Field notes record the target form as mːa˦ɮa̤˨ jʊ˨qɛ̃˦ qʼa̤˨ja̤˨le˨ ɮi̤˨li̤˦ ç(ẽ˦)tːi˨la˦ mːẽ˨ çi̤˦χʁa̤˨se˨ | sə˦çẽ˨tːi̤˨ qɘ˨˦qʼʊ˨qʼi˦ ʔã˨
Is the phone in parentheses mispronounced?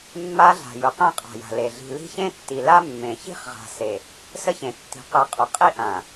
no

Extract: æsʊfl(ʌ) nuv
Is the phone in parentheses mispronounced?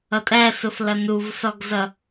no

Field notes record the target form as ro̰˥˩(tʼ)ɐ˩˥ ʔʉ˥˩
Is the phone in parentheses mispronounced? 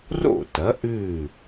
yes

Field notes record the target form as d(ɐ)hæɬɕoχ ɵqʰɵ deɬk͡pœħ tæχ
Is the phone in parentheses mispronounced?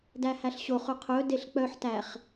yes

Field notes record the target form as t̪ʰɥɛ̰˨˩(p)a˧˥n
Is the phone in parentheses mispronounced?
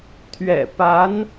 no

